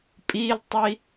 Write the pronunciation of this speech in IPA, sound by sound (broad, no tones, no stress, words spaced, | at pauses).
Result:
pʼiltˤi